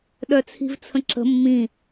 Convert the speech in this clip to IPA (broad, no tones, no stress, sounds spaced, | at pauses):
ɗ œ t͡sʰ i̤ v t͡sʰ ə̃ ǁ ə̤ mː ĩ